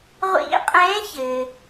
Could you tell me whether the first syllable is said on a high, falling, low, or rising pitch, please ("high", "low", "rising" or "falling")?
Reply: rising